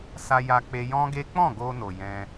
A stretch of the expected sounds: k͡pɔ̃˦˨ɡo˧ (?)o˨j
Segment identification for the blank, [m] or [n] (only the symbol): n